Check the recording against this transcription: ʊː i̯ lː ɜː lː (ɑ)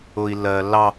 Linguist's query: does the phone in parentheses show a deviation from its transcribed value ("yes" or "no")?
no